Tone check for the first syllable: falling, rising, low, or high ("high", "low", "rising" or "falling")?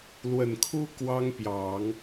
low